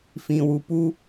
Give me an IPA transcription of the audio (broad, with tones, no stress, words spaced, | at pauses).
fĩ˨wu˨pu˧